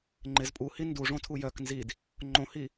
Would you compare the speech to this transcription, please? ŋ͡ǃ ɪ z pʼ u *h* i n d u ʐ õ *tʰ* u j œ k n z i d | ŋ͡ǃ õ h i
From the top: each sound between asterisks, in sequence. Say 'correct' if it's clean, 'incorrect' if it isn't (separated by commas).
correct, correct